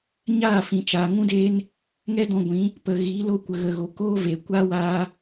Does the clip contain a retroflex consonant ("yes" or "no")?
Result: no